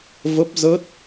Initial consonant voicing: voiced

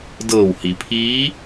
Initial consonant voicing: voiced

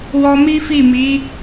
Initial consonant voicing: voiced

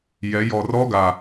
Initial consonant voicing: voiced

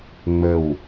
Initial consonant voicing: voiced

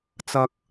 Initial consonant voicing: voiceless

